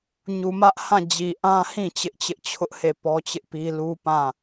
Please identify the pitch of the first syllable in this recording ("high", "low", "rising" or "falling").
low